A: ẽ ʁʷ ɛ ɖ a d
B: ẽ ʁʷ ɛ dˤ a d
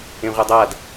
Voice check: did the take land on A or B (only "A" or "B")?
B